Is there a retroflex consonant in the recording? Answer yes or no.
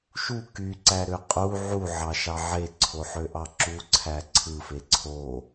no